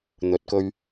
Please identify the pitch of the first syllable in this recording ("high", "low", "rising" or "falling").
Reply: rising